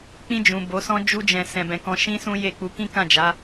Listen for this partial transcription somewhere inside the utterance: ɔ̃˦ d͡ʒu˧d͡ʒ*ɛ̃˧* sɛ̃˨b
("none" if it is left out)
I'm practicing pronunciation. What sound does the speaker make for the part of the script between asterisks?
ɛ̃˨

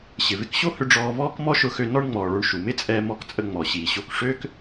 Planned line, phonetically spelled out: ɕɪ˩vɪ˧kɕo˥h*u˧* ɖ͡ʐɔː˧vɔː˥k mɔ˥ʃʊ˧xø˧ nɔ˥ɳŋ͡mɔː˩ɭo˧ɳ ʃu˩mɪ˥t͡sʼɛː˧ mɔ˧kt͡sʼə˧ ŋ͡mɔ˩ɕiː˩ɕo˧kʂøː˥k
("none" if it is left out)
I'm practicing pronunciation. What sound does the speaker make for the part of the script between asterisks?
ʏ˧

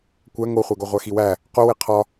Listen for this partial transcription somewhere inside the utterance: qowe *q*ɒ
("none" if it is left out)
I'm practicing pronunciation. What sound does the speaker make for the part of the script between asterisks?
qʰ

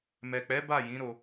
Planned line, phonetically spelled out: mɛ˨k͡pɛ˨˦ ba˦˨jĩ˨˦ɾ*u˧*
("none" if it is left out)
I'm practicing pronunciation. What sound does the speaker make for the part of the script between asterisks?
o˧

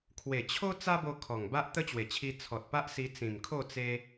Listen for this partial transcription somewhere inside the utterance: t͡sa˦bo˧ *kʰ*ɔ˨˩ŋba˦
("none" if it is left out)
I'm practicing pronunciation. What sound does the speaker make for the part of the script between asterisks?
kʰ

